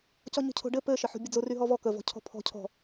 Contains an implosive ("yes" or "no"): no